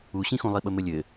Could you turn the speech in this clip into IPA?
uɕĩxũ lˠiɓəmɘlʲɘ

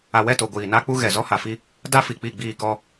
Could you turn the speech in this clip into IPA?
a˨wɛ˦˨to˨ ɡʷiː˨na˦k͡pu˦ɣɛ˨ zɔ˦ha˨fi˦ | da˦fi˨k͡pi˦˨ ɡ͡biː˦˨kɔ˦

